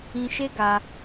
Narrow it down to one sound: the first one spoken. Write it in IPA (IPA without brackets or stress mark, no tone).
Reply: ĩ